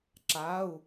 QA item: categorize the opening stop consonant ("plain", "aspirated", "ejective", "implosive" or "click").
click